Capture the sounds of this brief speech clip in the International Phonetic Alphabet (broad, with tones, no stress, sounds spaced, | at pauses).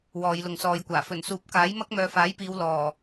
w ɔː˨˧ j l ʊ˨ ŋ s ɔː˨˧ j kʷ aː˨˩ f ɵ˨˩ n s uː˨˥ p̚ k aː˨˥ j m ɐ˥ k̚ m œː˨˧ f aː˨˥ j p iː˨˧ w l ɔː˨˩